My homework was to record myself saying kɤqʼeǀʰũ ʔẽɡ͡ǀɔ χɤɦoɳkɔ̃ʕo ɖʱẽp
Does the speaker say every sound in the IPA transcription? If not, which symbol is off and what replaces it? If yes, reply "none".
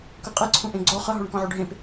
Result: none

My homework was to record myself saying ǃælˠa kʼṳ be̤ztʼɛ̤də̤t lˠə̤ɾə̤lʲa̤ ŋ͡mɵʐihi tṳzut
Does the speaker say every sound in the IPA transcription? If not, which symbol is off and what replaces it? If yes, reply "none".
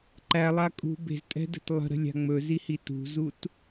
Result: ʐ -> z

